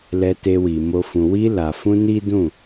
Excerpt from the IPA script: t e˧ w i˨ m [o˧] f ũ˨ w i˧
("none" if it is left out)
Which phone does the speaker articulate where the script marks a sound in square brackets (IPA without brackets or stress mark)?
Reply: o˧